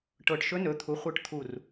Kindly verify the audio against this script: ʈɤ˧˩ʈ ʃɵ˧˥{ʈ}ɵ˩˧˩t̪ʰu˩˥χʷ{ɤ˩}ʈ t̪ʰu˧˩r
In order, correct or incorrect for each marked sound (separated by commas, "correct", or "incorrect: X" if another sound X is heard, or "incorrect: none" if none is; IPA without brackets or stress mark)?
incorrect: n, incorrect: ɤ˧˩